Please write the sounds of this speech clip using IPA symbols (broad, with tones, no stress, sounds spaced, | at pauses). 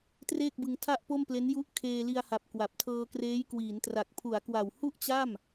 t r eː˥˩ k̚ b ɯ˧ ŋ tʰ a˥˩ ʔ p o˥˩ m p l e˦˥ n j u˦˥ ʔ kʰ eː˧ l i˧ a̯ h a˨˩ p̚ k w a˨˩ p̚ tʰ ɤː˧ k r eː˦˥ j k w iː˩˦ n t r a˨˩ k̚ pʰ u˩˦ a̯ k w a˨˩ w h u˥˩ ʔ t͡ɕ a˥˩ m